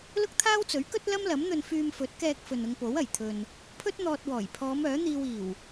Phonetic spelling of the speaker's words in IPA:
l ʊ˥ k̚ t̪ʰ aː˥ w t͡s ɵ˨˥ ɥ k ɵ˥ t̚ l ɐ˥ m l ɐ˨˥ m n̪ ɵ˧ n f yː˧ m f ɵ˨˥ t̚ k ɛː˧ k̚ f ɵ˨ n ʊ˧ ŋ p o˨˥ w ɐ˨˩ j t̪ʰ ɵ˨ n | pʰ ɵ˥ t̚ n̪ ɔː˧ t̚ w ɔː˨˩ j pʰ ɔː˨˧ m œː˨˥ n̪ iː˧ w iː˨˩ w

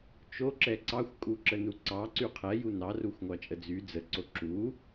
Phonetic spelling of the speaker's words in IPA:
t͡ʃ o ǁ ɛ ǀ ɑ xʷ kʼ u ǁ ə n u ǀ ɑ ǀ y qʰ ɛ j u n ɑ r u xʷ ŋʷ ɑ t͡ʃʼ ə d͡z y d͡z ə ǀ o ǁ u

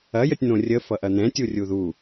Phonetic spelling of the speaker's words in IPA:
ɐ j ə tʲ n̪ õ rʲ ə f ʌ ʔ ɐ n̪ ɛ̃ tʲ u rʲ u ð u

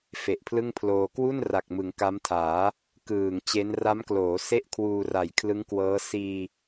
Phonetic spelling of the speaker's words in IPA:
f e˨˩ ʔ pʰ l ɯ˥˩ ŋ pʰ l oː˧ k w u˥˩ n r a˨˩ k̚ m ɯ˩˦ ŋ k a˦˥ m tʰ aː˩˦ | k ɯː˨˩ ŋ t͡ɕ e˦˥ n r a˦˥ m k l oː˩˦ s e˥˩ ʔ kʰ w uː˧ r a˨˩ j kʰ l ɯ˦˥ ŋ k w ɤː˦˥ s iː˧

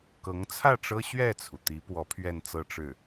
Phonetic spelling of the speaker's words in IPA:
k ɤ˧˥ ŋ t͡sʰ ä˥˩ ʈ͡ʂ ɤ˥ ɕ ɥ ɛ˥˩ t͡sʰ u˩ t̪ i˧˥ p w ɔ˧˥ pʰ ɥ ɛ˥˧ n t͡s ɤ˥˧ ʈ͡ʂ ɻ̩˥˩

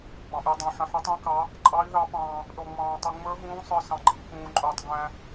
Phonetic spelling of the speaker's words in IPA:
ɡ͡b ɑ̃˧ ʔ i˧ dˤ æ̃˧ ħ ə̃˧ ħ i˧˥ tˤ ĩ˧˥ k ɑ˧˥ | ǃʼ ɑ˧˥ i̯ ð ɑ˧˥ p ɑ̃ː˧ | ɗ ɔ˧ ŋ͡m ɑ̃ː˧ tˤ u˧ ŋ͡m ə˞˧˥ ɦ ũː˧˥ sˤ ə˞˧ s ɑ̃˧ ɡ͡ǃ iː˧ k ũː˧ ǃʼ ʊː˧ tˤ ɡ æ̃˧

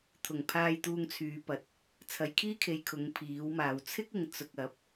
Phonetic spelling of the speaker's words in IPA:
t̪ʰ ʊ˨˩ ŋ pʰ aː˨ j t̪ uː˨ ŋ t͡sʰ yː˨˧ p ɐ˨˥ t̚ | t͡sʰ ɐ˨ j kʰ iː˥ kʰ e˨ j kʰ ʊ˨˧ ŋ pʰ iː˨˥ w m aː˨˧ w t͡sʰ ɪ˥ k̚ ɪ˨˧ ŋ t͡s ʊ˧ k̚ ɐ˨˥ p̚

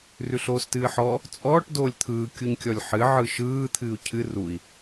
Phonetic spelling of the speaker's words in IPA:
r ʉ ɬ oː s t ɨː ħ ɔ | t͡sʼ ɔː ʈ d oː lʲ t̪ʰ ɯː kʲ u ɲ kʲ ɔ lʲ ħ ɨ ʕ ɯ ʃ ɯː t̪ʰ ɨː u̯ cʰ ɨ r u i̯

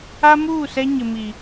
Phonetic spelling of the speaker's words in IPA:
a˦ m uː˦˨ s ɛ˦ ɲ ɪ˨ m i˨

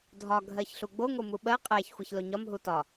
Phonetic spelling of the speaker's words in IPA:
dʱ ɒ ɡʱ ɜ ç ɬ u ɡ͡b o ŋ o m u ɓ ɜ qʼ æ ç xʷ æ ç l o ɲ ɒ m ɦ u t ɒ

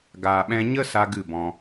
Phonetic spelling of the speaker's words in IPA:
ɡ aː˨ ɓ ɛ̃˧ ɲ ə˦ s a˦ ɡ ɨ˦˨ b ɔ̃˧

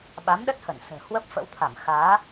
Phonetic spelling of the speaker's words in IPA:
ɓ a˨˦ m ɗ ə˦˥ t̚ h ə˧˩ n s ə̤ː˨˩ h w ə˦˥ p̚ f ə̰˧˥ w t̪ʰ a˧˩ m x aː˨˦

